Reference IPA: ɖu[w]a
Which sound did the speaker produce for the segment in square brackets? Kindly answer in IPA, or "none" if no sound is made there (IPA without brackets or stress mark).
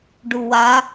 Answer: w